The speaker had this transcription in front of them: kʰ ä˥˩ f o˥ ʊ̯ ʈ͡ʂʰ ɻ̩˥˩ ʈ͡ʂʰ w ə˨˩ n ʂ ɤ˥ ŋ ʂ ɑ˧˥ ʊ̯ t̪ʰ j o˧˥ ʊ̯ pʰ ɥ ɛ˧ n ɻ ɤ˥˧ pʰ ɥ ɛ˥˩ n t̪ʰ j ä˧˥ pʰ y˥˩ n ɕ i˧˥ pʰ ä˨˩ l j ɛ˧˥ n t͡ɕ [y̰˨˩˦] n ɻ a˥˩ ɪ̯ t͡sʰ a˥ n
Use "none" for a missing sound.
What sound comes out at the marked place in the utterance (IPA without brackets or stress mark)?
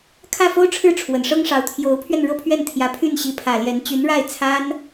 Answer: y˧˥